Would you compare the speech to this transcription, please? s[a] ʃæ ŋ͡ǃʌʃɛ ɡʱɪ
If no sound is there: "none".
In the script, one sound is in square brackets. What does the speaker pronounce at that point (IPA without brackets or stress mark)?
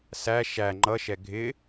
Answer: æ